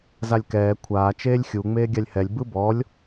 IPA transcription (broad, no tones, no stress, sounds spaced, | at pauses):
z a lʲ k ɛː kʷʰ aː t͡ʃ eː lʲ xʲ u ŋ͡m eː ɡʲ a lʲ h ɛ lʲ b ɯ b ɔ lʲ